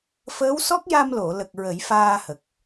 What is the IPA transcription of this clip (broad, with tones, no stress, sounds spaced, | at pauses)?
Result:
f əː˧˥ w s ɔ˦˥ k̚ j a˧ m l o˨˩˨ l ə˨˩ k̚ ɹ ə˨˩˦ j f aː˧ h ə˨˩ k̚